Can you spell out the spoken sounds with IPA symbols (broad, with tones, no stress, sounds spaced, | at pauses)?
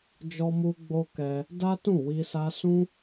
d͡ʒ ɔ˦ m u˦ ɡ͡b o˦ k ɛ˧ | d a˦ t ũ˦˨ w i˧ s a˧ s ũ˦